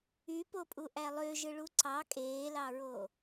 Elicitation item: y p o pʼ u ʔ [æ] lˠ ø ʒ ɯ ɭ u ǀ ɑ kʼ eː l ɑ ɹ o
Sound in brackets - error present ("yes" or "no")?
no